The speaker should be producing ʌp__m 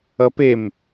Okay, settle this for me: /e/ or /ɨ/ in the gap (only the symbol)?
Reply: e